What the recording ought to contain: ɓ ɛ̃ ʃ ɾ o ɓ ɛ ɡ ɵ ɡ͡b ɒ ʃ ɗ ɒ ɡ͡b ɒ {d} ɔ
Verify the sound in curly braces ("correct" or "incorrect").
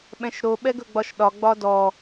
correct